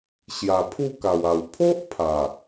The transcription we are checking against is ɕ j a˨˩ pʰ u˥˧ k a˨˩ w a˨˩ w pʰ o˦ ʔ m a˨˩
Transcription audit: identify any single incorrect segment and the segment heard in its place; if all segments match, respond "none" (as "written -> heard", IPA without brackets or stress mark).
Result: m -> pʰ